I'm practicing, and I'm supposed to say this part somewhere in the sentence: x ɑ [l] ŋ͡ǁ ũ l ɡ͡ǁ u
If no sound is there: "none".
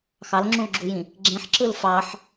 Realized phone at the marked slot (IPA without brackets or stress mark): l